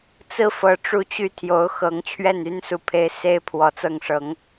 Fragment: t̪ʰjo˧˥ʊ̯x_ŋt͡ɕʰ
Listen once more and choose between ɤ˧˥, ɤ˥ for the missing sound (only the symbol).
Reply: ɤ˧˥